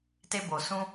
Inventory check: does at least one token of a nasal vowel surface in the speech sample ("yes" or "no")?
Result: yes